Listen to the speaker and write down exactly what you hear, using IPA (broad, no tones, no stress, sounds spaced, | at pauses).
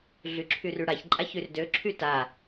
ɮ y ǁʰ y r y ɽ a ç ǃʼ a ç y r d ø ǁʰ y t a